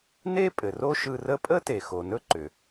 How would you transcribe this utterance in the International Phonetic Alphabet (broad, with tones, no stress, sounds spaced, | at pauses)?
n e˥ pʼ ɘ˩ r o˥ ʃ ɯ˧ r ə˥ pʼ ə˥ t e˩ x o˩ n ɵ˥ ǃ ʏ˩